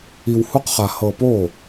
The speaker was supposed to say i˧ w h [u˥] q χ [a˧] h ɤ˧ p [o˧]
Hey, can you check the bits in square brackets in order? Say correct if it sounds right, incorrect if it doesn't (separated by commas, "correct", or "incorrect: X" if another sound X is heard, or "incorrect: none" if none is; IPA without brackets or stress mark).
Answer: correct, correct, incorrect: o˥˩